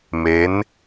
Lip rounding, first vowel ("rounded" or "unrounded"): unrounded